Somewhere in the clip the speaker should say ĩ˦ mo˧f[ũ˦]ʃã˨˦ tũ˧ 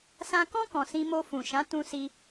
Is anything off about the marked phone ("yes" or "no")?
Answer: yes